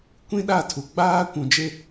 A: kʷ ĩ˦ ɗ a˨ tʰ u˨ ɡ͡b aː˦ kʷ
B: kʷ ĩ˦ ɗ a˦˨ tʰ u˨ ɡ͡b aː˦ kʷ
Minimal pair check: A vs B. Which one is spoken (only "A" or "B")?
B